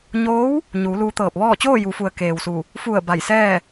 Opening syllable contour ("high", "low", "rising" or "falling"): rising